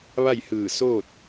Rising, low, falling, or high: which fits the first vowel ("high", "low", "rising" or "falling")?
falling